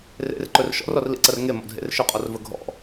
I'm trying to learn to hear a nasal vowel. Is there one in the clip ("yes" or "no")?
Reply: no